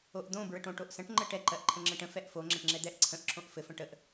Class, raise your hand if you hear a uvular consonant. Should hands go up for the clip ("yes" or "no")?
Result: no